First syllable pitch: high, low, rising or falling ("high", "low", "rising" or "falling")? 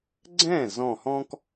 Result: falling